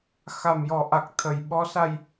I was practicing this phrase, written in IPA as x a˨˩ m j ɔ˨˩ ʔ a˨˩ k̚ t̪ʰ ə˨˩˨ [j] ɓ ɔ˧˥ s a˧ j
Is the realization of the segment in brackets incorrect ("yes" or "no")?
no